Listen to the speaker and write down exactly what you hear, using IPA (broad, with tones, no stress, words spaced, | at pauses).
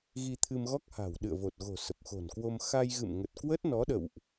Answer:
ɣi˧t̪ʰɨ˧mɣɔ˦˥k̚ha̤˨˩w ɗɨ̰˧˨ə̯vo˨˩t̚ɣo̤˨˩ sə˨˩p̚xo̤˨˩nkwo˧m xa˧jɣɨ̰˧˨mŋə˨˩t̚kwə˦˥t̚ nɔ˨˦ɗə̰˧˨wʔ